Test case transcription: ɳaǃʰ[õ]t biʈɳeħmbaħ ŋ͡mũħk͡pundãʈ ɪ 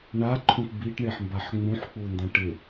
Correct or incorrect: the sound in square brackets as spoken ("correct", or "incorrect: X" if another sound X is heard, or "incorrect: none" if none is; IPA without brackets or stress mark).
incorrect: ũ